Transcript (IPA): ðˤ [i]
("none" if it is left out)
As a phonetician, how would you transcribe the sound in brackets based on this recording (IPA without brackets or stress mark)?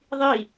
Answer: i